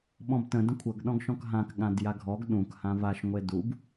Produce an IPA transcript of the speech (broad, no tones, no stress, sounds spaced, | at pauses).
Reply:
ɓ ɔ̃ b t ə̃ d ə̃ kʷʰ ɤ ɡ ɗ ɔ̃ ɡ ʃ ɔ̃ k ɦ ã k ɠ ã d j a ɡʱ ɔ ɡ ɗ ũ k h ã v a ʃ ŋʷ e d u b